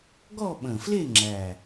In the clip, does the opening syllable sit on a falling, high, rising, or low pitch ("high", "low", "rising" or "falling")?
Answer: falling